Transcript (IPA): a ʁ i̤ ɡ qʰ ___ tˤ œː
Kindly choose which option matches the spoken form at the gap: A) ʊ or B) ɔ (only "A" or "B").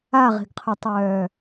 A